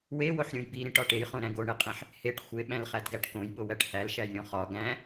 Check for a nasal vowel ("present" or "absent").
present